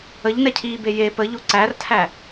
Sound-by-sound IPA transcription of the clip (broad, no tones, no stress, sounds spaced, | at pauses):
ə ʎ n ɛ cʰ iː b e j e p ə ʎ o ǀ æ r tʰ æ